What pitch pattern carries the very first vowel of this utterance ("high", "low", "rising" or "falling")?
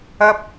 high